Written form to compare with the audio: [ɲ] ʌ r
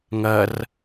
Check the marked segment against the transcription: incorrect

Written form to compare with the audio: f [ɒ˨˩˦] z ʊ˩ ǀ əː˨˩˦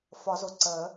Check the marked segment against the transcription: correct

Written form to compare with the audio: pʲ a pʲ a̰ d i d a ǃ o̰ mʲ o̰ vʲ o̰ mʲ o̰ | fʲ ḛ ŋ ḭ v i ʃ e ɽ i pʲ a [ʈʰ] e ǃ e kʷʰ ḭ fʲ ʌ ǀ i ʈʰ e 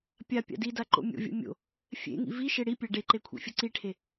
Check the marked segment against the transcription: incorrect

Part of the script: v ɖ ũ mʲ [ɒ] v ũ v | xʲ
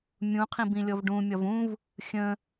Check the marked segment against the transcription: correct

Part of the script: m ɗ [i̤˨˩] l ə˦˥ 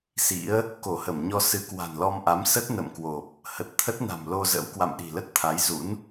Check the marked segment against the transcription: correct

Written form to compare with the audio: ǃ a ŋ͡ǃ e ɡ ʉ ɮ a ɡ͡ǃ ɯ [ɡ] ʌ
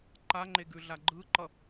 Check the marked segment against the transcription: incorrect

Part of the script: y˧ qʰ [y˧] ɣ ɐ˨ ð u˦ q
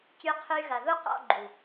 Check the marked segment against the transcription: correct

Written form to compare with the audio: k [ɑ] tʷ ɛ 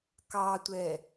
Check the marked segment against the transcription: correct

